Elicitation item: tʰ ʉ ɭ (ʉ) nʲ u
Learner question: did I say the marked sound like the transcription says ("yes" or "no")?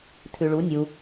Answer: no